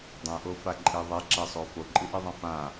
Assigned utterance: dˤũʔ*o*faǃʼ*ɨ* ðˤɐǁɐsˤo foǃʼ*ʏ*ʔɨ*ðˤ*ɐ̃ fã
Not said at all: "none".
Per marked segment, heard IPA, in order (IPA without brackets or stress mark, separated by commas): o, e, ɨ, ðˤ